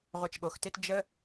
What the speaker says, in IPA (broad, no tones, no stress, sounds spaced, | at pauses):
ʁʷ ɛ t͡ʃ ɠ o x t e t d͡ʒ ə